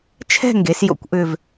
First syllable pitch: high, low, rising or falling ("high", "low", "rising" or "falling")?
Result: falling